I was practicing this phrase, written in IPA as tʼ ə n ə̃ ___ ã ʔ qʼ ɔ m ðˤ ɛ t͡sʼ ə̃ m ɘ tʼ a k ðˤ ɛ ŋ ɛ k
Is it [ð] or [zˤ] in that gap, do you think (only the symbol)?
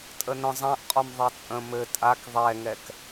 zˤ